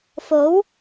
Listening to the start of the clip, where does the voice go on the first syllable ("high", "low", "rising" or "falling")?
rising